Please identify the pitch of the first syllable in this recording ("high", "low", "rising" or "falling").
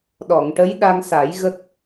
low